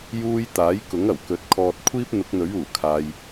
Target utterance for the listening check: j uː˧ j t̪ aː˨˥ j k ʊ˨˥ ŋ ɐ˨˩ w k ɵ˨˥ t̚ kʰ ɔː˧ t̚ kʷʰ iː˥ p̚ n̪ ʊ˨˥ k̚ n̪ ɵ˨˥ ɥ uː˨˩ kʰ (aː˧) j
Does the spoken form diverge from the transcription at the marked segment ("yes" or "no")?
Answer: no